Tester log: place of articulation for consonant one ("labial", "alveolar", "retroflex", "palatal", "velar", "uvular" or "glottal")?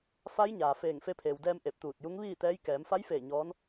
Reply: labial